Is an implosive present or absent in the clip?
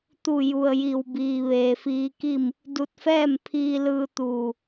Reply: absent